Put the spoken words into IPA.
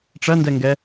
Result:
ʈ͡ʂ ɐ n d ɛ ŋ ɡ ɛ

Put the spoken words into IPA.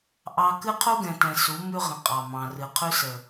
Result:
ʔ ɑ˦ k ɨ˦ qʰ u˦ ɡ ɛ̃˨ t ɛ̃˨ s u˨˦ m ʉ˦ ʁ ə̃˨ qʼ ɑ˨ m ɑ̃˨ r ɨ˨ qʰ ʉ˦ s ə˨

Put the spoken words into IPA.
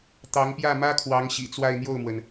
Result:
t̪ ɑ˧˥ ŋ p j ä˥˩ m ä˥ kʰ w ɑ˧˥ ŋ ɕ ḭ˨˩ t͡s w a˥˧ ɪ̯ n̪ j o˥˩ ʊ̯ m w ə˩ n

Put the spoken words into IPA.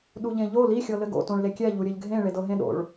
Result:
ɗ u ʎ ẽ ʎ o l i xʲ ɤ l ɘ ɡ o̰ t õ ɭ l e kʲ ɛ ʎ u ɾʲ ɘ ʎ ɡʱ ẽ ɭ e d ɤ ɦ ẽ ɗ o̰ ɭ

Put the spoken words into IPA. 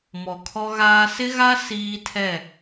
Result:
m ɔ˨ kʰ ɔ˦ ɣ aː˦ s ɪ˦ ɣ a˦ s iː˦ tʰ ɛ˦˨

